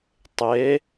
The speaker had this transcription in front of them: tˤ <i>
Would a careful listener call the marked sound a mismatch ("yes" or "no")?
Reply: yes